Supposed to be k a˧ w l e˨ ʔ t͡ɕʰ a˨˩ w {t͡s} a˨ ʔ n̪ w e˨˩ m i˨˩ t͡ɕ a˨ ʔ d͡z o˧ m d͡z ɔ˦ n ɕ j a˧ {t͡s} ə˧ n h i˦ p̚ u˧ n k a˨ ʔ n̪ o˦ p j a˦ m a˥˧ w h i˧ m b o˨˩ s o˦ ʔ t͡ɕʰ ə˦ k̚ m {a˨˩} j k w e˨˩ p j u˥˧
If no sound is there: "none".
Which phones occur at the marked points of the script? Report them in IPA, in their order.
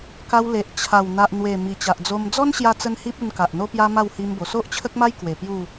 n̪, t͡s, a˦

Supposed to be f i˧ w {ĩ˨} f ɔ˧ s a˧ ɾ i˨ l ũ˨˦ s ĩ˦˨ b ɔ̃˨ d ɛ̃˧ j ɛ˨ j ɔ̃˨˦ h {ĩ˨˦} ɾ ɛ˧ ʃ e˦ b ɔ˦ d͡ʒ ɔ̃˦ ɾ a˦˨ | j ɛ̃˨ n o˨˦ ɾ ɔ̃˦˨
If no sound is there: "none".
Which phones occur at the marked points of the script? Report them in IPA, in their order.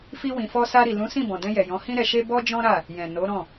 ĩ˨, ĩ˦

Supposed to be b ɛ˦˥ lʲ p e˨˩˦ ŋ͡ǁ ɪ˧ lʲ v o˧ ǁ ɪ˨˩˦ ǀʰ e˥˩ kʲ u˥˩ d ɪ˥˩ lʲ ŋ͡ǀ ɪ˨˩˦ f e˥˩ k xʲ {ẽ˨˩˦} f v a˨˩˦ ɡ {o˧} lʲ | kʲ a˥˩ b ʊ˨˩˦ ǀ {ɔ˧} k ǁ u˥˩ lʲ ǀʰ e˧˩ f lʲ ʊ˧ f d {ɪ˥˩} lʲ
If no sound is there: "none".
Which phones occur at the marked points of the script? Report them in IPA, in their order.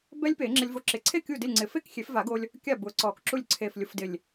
e˨˩˦, o˧, ɔ˨˩˦, ɪ˧˩

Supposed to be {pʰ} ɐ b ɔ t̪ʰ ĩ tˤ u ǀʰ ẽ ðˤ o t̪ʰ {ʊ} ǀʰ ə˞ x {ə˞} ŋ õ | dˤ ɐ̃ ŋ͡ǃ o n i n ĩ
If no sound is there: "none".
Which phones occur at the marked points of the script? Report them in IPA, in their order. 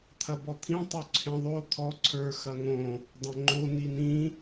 t̪ʰ, ɔ, ɐ

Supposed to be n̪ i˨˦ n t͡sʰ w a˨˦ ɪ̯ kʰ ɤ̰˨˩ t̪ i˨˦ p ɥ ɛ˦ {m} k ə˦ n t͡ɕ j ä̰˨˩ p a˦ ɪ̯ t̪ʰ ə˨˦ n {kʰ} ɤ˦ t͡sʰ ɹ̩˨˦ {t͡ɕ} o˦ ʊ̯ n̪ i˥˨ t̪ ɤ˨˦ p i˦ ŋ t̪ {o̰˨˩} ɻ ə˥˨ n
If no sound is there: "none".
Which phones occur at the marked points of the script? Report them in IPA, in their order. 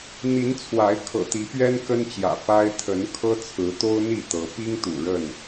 n, kʰ, t̪, ṵ˨˩

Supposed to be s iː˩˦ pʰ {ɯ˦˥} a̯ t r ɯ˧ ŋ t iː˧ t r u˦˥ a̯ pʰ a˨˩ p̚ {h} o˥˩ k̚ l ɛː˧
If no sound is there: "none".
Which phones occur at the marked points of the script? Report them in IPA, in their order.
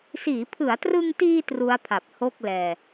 ɯ˩˦, h

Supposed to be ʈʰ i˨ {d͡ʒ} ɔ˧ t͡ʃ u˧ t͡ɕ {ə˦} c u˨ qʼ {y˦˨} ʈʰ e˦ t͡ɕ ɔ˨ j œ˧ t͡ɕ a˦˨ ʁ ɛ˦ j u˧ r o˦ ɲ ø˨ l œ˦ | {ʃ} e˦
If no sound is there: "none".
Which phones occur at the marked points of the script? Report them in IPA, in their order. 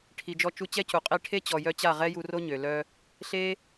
d͡ʒ, ɛ˦, i˦˨, ɬ

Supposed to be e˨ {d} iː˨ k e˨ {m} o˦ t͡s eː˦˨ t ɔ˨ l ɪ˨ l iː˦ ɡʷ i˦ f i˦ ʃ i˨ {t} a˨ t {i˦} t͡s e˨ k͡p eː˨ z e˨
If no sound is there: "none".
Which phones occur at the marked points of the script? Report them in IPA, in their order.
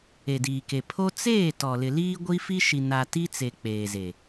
d, pʰ, n, i˦

